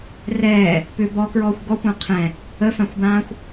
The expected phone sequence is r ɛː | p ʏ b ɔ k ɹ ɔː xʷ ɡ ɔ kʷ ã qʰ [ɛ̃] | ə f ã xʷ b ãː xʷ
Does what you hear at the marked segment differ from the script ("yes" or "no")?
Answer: no